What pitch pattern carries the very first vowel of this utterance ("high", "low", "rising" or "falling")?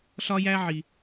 high